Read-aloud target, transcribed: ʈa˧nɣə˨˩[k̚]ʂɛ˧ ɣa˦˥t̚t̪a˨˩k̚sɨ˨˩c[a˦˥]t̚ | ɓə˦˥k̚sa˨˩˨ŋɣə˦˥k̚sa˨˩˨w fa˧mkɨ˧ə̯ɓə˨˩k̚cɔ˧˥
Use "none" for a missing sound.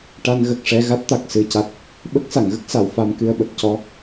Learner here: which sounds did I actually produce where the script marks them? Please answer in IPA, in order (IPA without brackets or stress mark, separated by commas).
k̚, a˨˩